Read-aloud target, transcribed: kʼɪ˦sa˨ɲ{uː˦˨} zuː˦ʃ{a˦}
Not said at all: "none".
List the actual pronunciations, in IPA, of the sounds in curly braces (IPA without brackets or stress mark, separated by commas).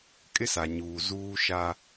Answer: uː˨, a˦